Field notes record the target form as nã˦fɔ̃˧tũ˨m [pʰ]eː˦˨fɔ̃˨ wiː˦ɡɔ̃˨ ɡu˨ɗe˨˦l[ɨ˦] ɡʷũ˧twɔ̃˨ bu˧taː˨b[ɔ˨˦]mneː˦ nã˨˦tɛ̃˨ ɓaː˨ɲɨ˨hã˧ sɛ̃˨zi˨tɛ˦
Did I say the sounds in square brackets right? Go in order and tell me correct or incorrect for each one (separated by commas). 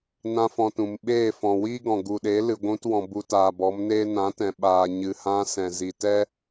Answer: incorrect, incorrect, correct